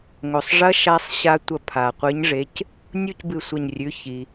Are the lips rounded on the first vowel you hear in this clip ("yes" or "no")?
yes